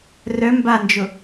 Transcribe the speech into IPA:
rœ mband͡ʒʊ

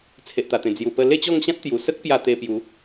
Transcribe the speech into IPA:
t͡sʰe˨ʔt̪a˨˩t̪ẽ˨˩ d͡zju˨˩pə˧ le˥˧t͡ɕɔ˥˧ŋɕã˦t̚t̪ju˨˩ sə˦k̚pja˧ t̪e˧ pju˨˦

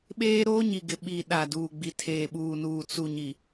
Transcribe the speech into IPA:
ɓeː˦ ɾoː˦ɲi˨ɡɪ˨ ɓi˨ ɗa˨duː˨ɡ͡bi˨ tʰeː˨ɓuː˨nuː˨ t͡su˨ɲi˨

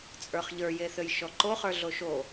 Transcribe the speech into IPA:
t͡sʼə˞χʎə˞jeθøj ʃɔǃoχə˞ ɮoʃo

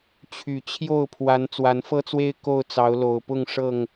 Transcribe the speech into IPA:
t͡ɕʰy˨˩ t͡ɕʰjo˥˨ʊ̯pʰwa˨˦n t͡swa˨˦nfɤ˦t͡swe˦ɪ̯ ko˥˨ʊ̯t͡sɑ˨˦ʊ̯lo˨˩ʊ̯ pʊ˥˨ŋ ʂɤ˥˨ŋ

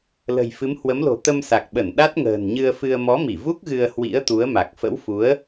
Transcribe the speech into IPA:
lə̤˨˩jfɨ˨˦mhwə˨˦mlo̤˨˩ t̪ə˧msa˨˩k̚ɓə˧˩n ɗa˦˥t̚ ŋə̤ː˨˩nɲɨ˧ə̯fɨ˧ə̯ mɔ˨˦mi˧˩vu˦˥k̚ ɣɨ˧ə̯hwḭ˧˥ə̯t̪u˨˦ə̯ma˨˩k̚ fə̰˧˥wfu˨˦ə̯

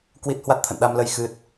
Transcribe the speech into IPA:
kwi˦˥t̚ hwa˦˥t̚t̪ʰə̰˧˨nɗa˧mlə˧j xɨ˦˥t̚

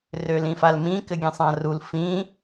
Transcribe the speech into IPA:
rølĩfalmĩ kɘɡʲẽsˤãrul fĩ

